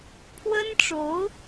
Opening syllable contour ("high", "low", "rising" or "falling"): high